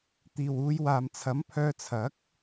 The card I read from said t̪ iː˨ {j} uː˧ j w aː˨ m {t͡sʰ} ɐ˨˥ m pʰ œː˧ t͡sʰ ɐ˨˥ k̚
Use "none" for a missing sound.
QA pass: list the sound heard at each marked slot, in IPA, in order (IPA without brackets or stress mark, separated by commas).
w, t͡sʰ